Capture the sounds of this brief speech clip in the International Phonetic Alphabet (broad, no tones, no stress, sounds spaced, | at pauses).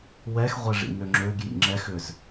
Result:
w ɛ x ʁʷ ɛ ʐ ḭ n ø ŋ͡ǁ ø ɡ j ḭ ŋ͡ǁ ɛ x ʏ z